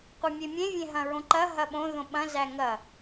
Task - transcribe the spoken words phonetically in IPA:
qʷ æ mʲ e mʲ ẽ vʲ ẽ ɦ ɐ̃ ɹ õ ǃ ɐ ɦ ɐ ɓ õ ð õ ɓ ɐ̃ z æ ŋ ɐ

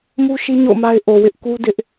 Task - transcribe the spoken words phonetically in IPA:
m u˦ ʃ i˦ ɲ o̰˦˨ ʊ̯ m a˦ ɪ̯ ʔ o˨ w ɪ˦ ʔ k u˦ d ɪ˦ ʔ

